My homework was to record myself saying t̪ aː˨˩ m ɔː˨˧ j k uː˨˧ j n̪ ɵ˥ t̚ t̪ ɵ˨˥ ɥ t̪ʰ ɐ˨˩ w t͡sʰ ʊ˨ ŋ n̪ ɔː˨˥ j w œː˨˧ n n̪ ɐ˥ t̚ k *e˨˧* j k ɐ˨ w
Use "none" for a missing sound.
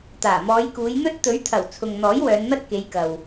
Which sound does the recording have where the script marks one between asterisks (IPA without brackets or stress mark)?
e˨˧